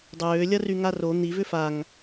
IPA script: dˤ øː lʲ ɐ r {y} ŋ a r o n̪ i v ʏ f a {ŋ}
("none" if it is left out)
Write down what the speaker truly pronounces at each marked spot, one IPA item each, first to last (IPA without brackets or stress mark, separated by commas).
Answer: y, ŋ